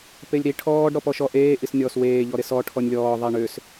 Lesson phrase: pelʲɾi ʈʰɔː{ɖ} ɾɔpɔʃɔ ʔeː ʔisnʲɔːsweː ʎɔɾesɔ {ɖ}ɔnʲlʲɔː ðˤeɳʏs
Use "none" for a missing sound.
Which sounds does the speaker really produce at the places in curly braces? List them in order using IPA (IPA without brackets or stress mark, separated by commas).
ɖ, ʈʰ